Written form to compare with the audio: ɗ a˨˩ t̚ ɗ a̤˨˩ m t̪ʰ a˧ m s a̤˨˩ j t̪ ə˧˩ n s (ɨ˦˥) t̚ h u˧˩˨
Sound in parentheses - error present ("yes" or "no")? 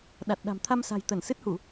no